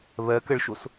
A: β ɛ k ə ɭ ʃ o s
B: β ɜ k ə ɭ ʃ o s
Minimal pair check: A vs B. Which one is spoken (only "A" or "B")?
B